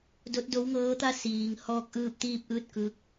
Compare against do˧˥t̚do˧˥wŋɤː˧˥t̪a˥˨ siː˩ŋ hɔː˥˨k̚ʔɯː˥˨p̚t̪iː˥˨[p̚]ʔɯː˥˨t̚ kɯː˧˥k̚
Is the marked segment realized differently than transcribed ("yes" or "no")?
no